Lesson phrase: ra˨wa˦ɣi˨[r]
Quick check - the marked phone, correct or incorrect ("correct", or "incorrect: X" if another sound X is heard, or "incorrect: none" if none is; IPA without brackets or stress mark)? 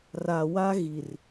correct